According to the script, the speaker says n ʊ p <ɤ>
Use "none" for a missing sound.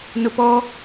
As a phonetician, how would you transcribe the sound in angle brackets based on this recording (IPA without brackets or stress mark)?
ɔ